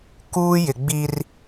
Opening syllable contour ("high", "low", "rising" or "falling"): high